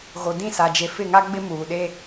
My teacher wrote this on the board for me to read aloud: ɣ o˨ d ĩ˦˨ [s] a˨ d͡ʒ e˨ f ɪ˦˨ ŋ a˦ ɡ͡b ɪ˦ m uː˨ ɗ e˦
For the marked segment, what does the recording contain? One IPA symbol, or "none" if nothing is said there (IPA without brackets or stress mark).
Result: s